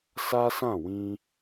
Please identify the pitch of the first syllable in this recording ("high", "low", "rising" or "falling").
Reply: high